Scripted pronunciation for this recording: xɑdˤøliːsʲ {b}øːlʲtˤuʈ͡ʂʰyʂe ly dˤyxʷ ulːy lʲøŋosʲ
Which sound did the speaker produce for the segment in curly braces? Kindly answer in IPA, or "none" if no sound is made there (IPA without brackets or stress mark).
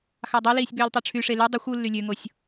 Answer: b